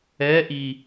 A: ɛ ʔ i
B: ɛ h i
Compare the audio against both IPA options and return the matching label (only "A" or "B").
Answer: A